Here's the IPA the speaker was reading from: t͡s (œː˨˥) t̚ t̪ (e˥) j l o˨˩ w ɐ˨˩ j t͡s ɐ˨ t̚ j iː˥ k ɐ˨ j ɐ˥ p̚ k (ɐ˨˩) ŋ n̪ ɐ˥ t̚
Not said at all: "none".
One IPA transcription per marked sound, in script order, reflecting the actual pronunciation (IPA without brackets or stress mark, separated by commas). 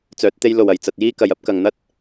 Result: œː˨˥, e˥, ɐ˨